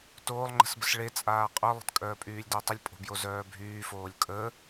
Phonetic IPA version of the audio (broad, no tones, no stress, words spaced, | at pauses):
toːlˠŋ͡ǃə̤sbəs ɭe t͡sʼaːqʼœlˠə̤t kʼœːpʼyːlʲdœtˤəlʲ pʼo̤bjozœːbʱyː foːlʲkʼə